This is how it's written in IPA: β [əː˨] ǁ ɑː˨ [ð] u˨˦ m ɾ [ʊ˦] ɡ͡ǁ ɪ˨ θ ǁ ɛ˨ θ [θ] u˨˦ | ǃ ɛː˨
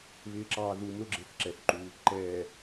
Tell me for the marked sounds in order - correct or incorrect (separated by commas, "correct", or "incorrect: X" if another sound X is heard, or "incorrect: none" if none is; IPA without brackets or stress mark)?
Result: incorrect: ɪː˨, correct, correct, incorrect: ǃ